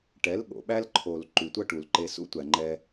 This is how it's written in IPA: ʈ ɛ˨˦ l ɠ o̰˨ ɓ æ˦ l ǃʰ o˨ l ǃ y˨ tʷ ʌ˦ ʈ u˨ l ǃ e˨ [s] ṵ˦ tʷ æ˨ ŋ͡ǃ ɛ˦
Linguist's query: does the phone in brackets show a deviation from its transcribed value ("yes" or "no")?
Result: no